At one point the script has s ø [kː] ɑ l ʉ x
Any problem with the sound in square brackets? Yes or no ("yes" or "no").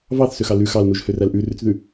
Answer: yes